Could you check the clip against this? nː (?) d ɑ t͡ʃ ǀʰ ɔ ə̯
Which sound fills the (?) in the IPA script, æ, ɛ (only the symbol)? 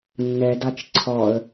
ɛ